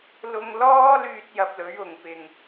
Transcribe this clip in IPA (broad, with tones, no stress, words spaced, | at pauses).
lʊ˧ŋlɔː˥ lyː˥t̚jɐ˧p̚lɵ˨˥ɥ ʊ˨˩ŋ pɪ˨˩ŋ